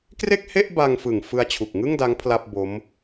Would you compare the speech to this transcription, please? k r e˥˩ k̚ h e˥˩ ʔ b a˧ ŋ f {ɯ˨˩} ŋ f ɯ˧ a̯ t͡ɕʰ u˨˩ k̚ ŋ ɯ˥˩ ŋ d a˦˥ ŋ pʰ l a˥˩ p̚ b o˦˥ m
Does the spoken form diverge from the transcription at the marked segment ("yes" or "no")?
no